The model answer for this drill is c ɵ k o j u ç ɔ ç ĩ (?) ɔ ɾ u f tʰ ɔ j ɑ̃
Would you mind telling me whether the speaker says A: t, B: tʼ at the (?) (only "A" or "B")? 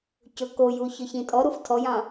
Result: B